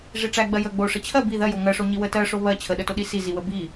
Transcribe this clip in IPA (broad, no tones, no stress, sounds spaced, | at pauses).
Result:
ʐ i ʈ͡ʂ æ ɡ͡b ɜ j ə ɡ͡b o ʂ ə t͡ɕʰ ɜ b i ð ɜ j o ŋ ɜ ʂ o ɲ i w ə t ɜ ʂ o β ɜ t͡ɕʰ ə ɗ ə t o ɗ i s i z i w ə b i